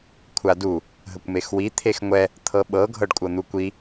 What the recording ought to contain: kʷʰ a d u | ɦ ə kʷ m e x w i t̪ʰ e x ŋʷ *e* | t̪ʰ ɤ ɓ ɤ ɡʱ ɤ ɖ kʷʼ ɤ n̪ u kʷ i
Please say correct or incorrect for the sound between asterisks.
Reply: incorrect